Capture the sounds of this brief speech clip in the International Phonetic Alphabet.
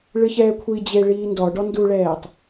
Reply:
ɭ ɨ ç ɛː kʷʰ i d͡ʑ e ɭ iː n d ɔ ɖ ɔ n d u ɭ ɛː tˤ

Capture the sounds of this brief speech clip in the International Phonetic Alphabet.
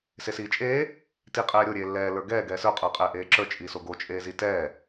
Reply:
s e s iː t͡ʃʼ eː | t i qʼ ɛː ɾʲ o ɾʲ eː lː ɛː l ə˞ ɡ ɛː ɡ ɛː s ə˞ qʼ ə˞ qʼ ɛː ʔ eː ǁ ə˞ t͡ʃʼ i s o ɡ o t͡ʃʼ eː z i t ɛː

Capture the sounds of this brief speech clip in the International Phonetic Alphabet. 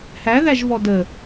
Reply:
h æ ð æ ʒ v ɔ d ə

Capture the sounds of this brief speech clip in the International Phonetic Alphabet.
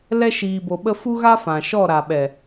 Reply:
l ɛ˧ ʃ iː˨ b o˨ ɓ ə˧ f u˦ ɣ a˦ f ã˨ ʃ ɔ˦˨ ɾ a˨ ɓ ɛ˨

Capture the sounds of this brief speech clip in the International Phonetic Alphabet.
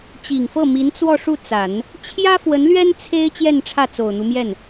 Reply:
t͡ɕ i˨˩ ŋ f ɤ˥˩ m i˧˥ n t͡s w ɔ˥˧ ʂ u˥˩ t͡s a˨˩˦ n | t͡ɕʰ j ä˥ f w ə˧˥ n l ɥ ɛ˥ n t͡sʰ e˥ ɪ̯ t͡ɕ j ɛ˥˧ n ʈ͡ʂʰ ä˥˩ t͡s o˨˩ ʊ̯ n̪ u˦ m j ɛ˥˩ n

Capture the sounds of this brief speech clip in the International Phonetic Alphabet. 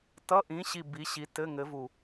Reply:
t ʌ˧˥˧ ʔ ĩ˨˥ ɕ i˧˩ b i˨˥ ɕ i˨˥ t ɘ˧˥˧ ŋ ɘ˨˥ v u˧˩

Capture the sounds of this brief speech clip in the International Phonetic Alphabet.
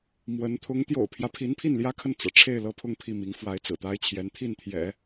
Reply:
m w ə˧˥ n t̪ʰ ʊ˧˥ ŋ t̪ j o̰˨˩ ʊ̯ pʰ j ä˦ pʰ i˧˥ n pʰ i˥˩ n l j ä˥ kʰ ə˥˩ n t͡s ɤ̰˨˩ ʈ͡ʂʰ e˥˧ ɪ̯ l ɤ˥˧ pʰ ʊ˥˧ ŋ pʰ i˥˩ m i˧˥ ŋ f w a˧˥ ɪ̯ t͡s ɹ̩˨˩ t̪ a˥ ɪ̯ t͡ɕʰ j ɛ˧˥ n t̪ʰ i˥˩ n t̪ʰ j ɛ̰˨˩˦

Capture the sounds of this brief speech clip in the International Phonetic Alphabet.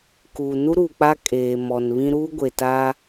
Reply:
k u˨ n u˦ ɾ uː˨ k͡p a˦ kʼ eː˨ m ɔ˨ n β ĩ˦ ɾ uː˦ ɡʷ e˨ t a˦

